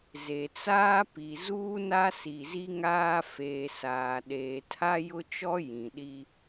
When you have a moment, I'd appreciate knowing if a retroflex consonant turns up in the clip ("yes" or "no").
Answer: no